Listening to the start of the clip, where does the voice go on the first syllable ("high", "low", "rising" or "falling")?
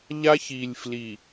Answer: high